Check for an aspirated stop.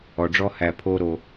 present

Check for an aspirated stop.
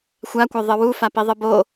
absent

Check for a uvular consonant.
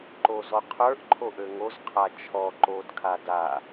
present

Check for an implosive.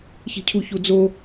absent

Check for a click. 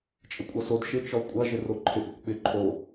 present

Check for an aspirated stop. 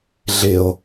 absent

